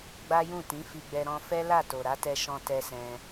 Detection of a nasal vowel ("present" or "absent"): present